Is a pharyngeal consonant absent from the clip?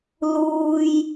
yes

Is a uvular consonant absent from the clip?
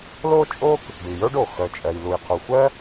no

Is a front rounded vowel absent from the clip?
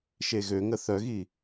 no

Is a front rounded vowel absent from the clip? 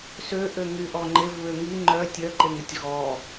no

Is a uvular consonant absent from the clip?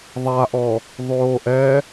yes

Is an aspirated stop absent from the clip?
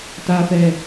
yes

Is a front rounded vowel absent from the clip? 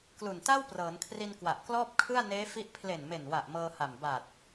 yes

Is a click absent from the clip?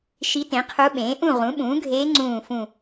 no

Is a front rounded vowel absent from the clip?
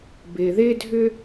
no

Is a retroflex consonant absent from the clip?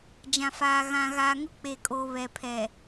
yes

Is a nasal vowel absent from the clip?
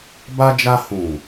no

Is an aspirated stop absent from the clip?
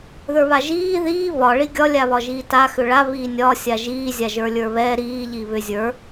yes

